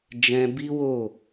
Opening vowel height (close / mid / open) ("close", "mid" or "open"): mid